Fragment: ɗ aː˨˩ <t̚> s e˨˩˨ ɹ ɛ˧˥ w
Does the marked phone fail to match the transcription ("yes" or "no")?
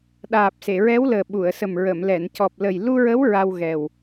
yes